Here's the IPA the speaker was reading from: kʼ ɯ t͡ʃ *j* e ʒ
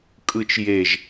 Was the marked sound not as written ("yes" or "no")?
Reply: no